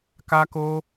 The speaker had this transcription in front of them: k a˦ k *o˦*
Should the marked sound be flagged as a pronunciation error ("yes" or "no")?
no